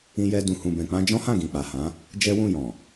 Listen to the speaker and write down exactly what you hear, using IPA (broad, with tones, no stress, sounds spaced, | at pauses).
ĩ˧ j ɛ˧ d ũ˨ h ũ˨ b ɛ̃˨ k͡p ã˧ d͡ʒ ɔ̃˦ h ã˦˨ ɡ ĩ˨ k͡p a˨ h ã˨˦ | d͡ʒ ɛ˦ w ũ˦˨ j ɔ̃˨